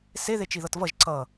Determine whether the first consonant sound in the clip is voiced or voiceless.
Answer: voiceless